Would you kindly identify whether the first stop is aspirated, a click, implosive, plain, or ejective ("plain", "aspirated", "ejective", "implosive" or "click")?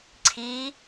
click